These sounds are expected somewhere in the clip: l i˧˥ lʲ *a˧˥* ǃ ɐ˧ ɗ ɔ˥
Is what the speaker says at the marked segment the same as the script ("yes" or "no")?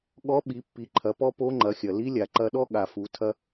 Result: no